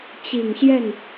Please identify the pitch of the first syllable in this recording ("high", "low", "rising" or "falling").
low